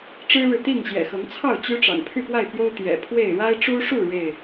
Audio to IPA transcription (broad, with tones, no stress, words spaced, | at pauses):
ʈ͡ʂɻ̩˦ɻɻ̩˨t̪i˥˨ŋ ɕjɛ̰˨˩xɤ˨˦ŋt͡sʰɑ˥˨ʊ̯ t͡ɕy˦ʈ͡ʂɑ̰˨˩ŋ pʰy˥˨pwa˥˨ɪ̯pjo˦ʊ̯ t̪jɛ̰˨˩pʰwe˥˨ɪ̯ ɻa˦ɪ̯ʈ͡ʂu˦ʂu˥˨ ɻe˥˨ɪ̯